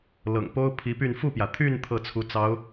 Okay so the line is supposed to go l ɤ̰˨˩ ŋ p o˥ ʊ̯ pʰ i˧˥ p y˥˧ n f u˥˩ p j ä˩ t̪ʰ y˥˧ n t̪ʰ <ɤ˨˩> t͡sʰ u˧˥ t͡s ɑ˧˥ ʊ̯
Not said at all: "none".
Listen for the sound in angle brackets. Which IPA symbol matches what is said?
ɤ˥˩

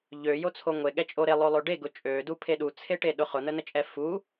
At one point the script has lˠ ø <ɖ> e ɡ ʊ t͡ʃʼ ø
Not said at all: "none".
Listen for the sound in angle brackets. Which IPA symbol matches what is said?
ɖ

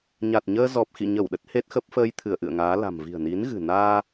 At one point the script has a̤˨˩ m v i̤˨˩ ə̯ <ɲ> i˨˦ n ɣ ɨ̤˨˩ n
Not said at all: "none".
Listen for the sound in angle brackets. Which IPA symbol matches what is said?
n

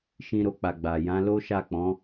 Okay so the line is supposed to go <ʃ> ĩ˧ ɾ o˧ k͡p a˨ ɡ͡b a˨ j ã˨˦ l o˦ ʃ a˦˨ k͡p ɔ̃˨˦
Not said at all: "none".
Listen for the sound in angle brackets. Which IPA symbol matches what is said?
ʃ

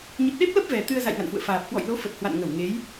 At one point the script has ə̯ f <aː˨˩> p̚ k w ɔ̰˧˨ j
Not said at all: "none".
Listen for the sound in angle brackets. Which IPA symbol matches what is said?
aː˨˩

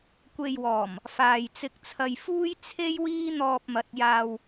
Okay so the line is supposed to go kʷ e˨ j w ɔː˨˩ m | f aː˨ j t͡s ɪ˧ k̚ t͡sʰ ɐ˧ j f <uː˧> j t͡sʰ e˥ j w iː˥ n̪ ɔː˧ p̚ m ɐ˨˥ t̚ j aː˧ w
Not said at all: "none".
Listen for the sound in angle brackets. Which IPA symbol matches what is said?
uː˥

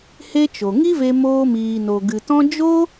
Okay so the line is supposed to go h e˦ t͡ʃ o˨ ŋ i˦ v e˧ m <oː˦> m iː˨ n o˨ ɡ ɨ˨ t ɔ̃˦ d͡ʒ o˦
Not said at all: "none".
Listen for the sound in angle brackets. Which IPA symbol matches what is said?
oː˧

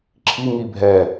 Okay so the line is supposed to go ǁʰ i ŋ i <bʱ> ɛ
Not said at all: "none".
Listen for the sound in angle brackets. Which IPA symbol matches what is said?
bʱ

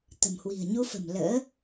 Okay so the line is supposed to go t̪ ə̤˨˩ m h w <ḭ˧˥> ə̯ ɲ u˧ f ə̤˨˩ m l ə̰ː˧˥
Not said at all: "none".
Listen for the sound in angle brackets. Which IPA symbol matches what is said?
i̤˨˩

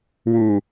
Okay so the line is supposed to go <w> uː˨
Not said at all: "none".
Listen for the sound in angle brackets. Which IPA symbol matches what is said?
w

